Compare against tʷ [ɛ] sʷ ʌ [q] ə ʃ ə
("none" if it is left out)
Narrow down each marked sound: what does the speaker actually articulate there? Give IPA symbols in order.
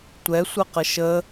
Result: ɛ, q

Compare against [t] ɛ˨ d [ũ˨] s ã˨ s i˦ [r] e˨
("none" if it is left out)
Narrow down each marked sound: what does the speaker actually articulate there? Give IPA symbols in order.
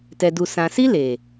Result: t, u˨, l

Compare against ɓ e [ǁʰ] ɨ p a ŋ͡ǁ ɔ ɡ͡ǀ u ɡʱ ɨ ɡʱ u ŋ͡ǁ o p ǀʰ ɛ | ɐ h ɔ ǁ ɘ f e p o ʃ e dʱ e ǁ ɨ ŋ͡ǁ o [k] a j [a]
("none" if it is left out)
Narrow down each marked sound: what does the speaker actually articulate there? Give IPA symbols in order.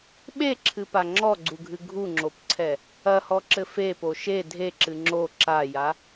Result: ǁʰ, ǁ, a

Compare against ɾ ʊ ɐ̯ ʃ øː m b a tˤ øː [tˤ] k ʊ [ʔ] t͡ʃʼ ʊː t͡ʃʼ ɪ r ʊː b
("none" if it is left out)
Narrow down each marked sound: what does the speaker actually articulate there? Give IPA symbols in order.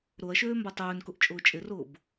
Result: n, ʔ

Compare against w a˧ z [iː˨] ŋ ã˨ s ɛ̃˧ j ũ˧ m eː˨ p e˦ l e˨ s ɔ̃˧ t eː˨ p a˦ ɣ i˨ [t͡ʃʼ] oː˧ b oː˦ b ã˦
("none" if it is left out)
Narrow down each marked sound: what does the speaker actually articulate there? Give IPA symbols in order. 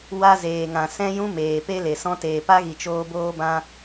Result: eː˨, t͡ʃ

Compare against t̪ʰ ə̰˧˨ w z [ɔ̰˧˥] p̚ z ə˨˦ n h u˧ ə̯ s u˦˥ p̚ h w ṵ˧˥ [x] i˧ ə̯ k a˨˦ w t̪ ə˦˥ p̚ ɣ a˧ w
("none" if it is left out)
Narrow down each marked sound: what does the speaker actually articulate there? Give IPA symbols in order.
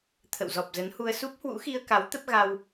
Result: ɔ˨˩, x

